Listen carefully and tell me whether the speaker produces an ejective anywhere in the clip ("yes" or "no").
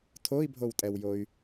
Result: yes